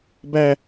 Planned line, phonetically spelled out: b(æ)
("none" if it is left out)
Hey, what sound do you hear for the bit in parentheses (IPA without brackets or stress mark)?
æ